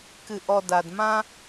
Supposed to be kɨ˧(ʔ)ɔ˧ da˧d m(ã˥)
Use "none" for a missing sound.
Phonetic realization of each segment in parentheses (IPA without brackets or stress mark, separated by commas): ʔ, ã˥